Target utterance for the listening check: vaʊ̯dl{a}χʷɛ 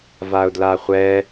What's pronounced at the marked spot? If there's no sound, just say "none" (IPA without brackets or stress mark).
a